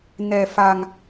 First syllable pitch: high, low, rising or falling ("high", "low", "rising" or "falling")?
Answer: low